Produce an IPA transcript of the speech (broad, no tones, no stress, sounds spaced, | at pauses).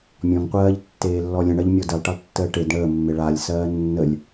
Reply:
mʲ ɔ̃ ŋ qʷ ɜː ʎ tː eː lː ɔ lʲ ə̃ ɳ ɜ ʎ mʲ ɔ d ɘ lˠ ʈ ə lˠ tː əː ʈ e d ɳ əː mː e ɭ a lʲ s ɜː nː ə lʲ